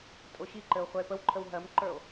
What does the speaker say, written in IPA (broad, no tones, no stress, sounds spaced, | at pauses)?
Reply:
tʼ o ɕ i ǃ ɘ o̯ χʷ ɜ e̯ p ə w ǃʰ ə w ɦ ɜ m ǃ ə˞ o̯